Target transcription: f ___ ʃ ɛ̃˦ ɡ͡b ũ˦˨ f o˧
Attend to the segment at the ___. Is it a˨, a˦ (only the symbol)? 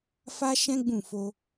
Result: a˦